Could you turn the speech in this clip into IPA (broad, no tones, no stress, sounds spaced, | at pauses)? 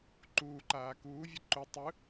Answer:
ǃ uː ǃ aː k uː vʲ ɯ ǃ u tˤ ɯ